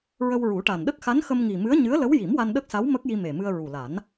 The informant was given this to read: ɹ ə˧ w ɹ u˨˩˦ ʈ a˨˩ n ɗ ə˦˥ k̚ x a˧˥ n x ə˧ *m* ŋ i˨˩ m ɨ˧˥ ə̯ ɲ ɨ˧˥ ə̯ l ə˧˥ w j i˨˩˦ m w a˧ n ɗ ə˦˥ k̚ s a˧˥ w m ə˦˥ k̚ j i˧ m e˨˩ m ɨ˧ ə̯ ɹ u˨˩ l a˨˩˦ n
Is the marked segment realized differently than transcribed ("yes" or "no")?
no